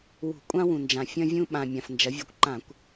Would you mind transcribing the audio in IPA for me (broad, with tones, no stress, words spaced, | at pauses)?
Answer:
wṳ˧˩˧kʷʼã˥wũ˩nd͡ʒã˩ fʲɐ̃˧vʲũ˧ ɓã˩ mʲã˩fnd͡ʒɐ˩˧ vʲʉ˩kʷǃã˧˩˧kʷ